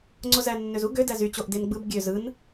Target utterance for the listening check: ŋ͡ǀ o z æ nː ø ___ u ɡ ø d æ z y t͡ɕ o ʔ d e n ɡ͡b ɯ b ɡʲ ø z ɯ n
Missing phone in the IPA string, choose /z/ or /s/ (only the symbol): z